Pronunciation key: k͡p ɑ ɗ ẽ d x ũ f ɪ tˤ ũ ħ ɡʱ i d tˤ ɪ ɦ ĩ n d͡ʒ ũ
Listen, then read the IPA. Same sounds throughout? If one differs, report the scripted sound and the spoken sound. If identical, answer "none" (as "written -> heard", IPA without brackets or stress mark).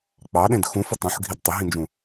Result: none